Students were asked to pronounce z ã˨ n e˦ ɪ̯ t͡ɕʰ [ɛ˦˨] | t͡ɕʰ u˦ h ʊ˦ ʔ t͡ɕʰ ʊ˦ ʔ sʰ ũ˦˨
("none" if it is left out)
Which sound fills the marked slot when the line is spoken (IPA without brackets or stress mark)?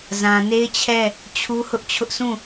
ɛ˦˨